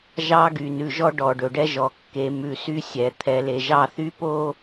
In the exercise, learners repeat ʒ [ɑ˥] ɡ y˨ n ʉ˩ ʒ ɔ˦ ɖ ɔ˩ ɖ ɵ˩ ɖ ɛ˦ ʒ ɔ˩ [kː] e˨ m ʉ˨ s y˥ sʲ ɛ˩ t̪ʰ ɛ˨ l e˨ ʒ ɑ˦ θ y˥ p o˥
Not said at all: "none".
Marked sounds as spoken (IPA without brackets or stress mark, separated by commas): ɑ˥, kː